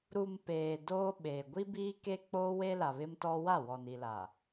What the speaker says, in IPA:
ɾu˨m peː˨ doː˦ɓe˨ ɡʷi˦biː˦ke˦ k͡poː˦we˦la˨ βɪ˦mtɔ˦ wa˦˨wɔ˨ni˨la˨

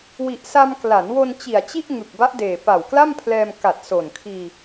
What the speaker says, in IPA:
wi˨˩ʔsa˧m kla˩˦nwo˧n t͡ɕi˨˩a̯t͡ɕi˥˩ʔ ŋɯ˨˩k̚ba˦˥ʔ deː˨˩ pa˨˩wkla˥˩mpʰlɛː˧m ka˨˩t̚ so˨˩n kʰiː˧

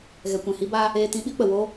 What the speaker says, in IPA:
ɣɛ˨kʷɛ̃˨hi˧baː˧ | eː˧tĩ˧ ɓi˧k͡pə˨woː˧

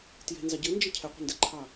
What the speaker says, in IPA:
tje̤nzɑ ɟɘnd͡ʒə cʰɛqʷə̤ndɛǃʰɑ

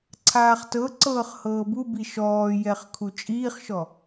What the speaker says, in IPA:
ǀʰaːχtɤǀɤːχ hɤːbubi ʃɔːjɛχ kʰut͡ʃʼiːχʃɔ

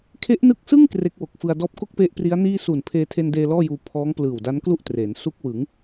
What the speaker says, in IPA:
kʰe˦˥ʔnɯ˦˥k̚sɯ˥˩ŋ kre˦˥k̚wo˨˩k̚fɯ˧a̯ dɔː˦˥p̚ko˥˩k̚pe˦˥ʔ pri˦˥a̯niː˥˩ suː˨˩npʰeː˧tʰe˧ndeː˧ lɔː˥˩juː˧ pʰɔː˦˥ŋ plɯː˨˩wda˦˥nklu˥˩ʔtreː˩˦n su˦˥k̚wɯ˩˦ŋ

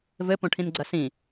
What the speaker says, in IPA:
vɘ põʈʰĩnɡ͡ǀɐsĩ

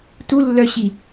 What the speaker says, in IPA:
tulːœɕi

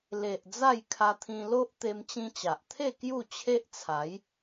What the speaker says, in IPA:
le˨ʔ d͡za˥˧j kʰa˧t̪ʰĩ˧ lo˦ʔ t̪e˧mt͡ɕĩ˧t͡ɕa˨ʔt̪ʰe˥˧ kju˥˧t͡ɕʰe˦ʔt͡sʰa˨˦j

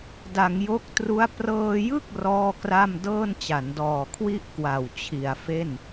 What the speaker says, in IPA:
da˩˦ŋjo˦˥k̚tru˦˥a̯ prɤː˧jɯ˥˩k̚ rɔː˥˩kra˥˩m dɤː˥˩nt͡ɕa˩˦ndɔː˨˩ kʰwi˥˩ʔkwa˨˩w t͡ɕʰi˨˩a̯fe˥˩n

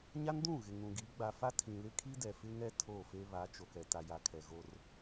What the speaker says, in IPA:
ɲa˦ndũ˦˨ ɣɪ˨ŋũ˨ɡi˨˦ ɡ͡ba˨fa˦ tʰĩ˨lɪ˦kʰi˦dɛ˨ fɪ˦ŋɛ˦ tʰo˦˨fe˦ βa˨˦t͡ʃo˨kɛ˨ ta˨ja˨ kʰɛ˨ɣo˦r

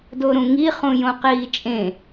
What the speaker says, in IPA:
doɾũŋi χũjõqiːt͡ʃʼẽ

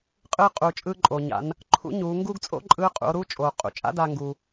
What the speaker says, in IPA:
qʼɯː˧qʼuː˩t͡ʃʼɯː˧ ǃʼoː˩ɲa̰˩˧n | ǃʰṵ˧˥ɲuː˩˧ŋɡuː˥ɡ t͡sʼo̰˥ǃʼɯː˧˥ qʼṵ˩˧o̯ɾuː˥t͡ʃʼoː˩ qʼṵ˩˧t͡ʃʼa̰˥daː˧ ŋɡu˩

